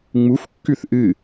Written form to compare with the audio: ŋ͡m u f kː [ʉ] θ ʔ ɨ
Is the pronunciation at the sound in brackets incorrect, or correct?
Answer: correct